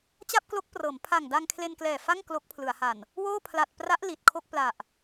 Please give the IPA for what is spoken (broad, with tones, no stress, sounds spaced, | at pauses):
t͡ɕ a˥˩ p̚ k l o˦˥ k̚ p r ɤː˩˦ m pʰ a˨˩ ŋ d a˧ ŋ kʰ l e˧ n k l ɛː˨˩ f a˥˩ ŋ k l o˦˥ k̚ pʰ l ɯ˩˦ a̯ h a˨˩ n | w oː˥˩ pʰ l a˨˩ t̚ p r a˦˥ ʔ l i˨˩ t̚ kʰ o˥˩ k̚ p l a˨˩ ʔ